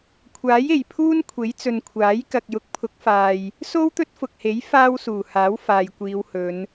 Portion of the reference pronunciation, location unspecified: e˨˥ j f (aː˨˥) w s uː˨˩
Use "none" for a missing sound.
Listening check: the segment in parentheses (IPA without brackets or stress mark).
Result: aː˥